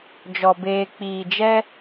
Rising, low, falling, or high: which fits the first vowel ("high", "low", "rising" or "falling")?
low